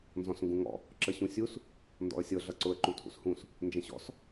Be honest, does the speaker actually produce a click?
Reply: yes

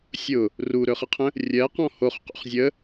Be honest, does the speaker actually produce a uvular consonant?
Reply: yes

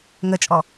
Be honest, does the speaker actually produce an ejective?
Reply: yes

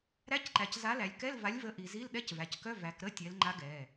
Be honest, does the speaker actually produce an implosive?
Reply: yes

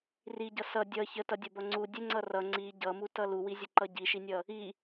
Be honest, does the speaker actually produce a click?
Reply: yes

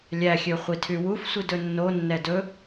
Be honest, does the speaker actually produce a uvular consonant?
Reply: yes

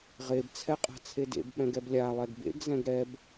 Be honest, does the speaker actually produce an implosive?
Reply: yes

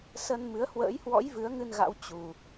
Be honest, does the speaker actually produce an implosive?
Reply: no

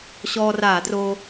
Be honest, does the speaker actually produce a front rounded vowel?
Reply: no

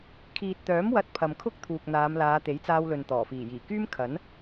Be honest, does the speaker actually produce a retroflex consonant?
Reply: no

